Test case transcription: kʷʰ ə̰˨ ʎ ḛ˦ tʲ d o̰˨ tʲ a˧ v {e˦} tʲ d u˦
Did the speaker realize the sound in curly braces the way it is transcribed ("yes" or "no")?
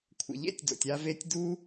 no